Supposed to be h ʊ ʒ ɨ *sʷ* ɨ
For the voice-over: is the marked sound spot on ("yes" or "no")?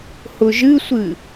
yes